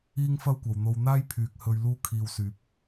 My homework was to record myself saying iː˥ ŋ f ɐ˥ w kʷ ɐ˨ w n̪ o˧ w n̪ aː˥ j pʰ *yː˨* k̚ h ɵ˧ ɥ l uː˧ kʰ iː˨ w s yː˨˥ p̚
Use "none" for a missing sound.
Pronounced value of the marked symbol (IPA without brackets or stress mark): yː˨